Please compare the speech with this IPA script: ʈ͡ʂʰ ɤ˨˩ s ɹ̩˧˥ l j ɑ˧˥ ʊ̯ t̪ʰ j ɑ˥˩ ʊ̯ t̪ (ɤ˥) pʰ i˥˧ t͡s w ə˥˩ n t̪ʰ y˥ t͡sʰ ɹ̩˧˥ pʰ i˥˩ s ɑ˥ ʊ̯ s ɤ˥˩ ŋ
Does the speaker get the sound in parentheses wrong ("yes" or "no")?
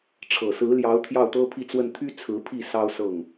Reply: no